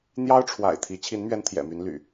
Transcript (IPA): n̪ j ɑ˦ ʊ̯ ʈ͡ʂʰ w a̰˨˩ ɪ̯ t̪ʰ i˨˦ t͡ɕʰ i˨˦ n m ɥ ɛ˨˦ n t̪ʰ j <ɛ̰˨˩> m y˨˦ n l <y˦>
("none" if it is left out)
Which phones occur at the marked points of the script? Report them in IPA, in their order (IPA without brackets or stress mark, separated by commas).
ɛ̰˨˩, y̰˨˩